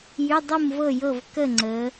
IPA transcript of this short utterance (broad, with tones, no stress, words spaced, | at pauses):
jy˧˥˧dˤu˥˨mvɤ˥˨jɤ˥˨v kə˥˨ŋ͡ǀə˨˦